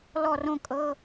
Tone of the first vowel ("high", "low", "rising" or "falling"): falling